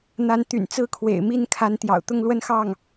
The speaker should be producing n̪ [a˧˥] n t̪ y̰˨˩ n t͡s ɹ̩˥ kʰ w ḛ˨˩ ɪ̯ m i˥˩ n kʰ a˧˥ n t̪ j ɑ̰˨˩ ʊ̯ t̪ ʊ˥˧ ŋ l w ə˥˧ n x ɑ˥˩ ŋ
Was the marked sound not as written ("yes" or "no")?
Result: no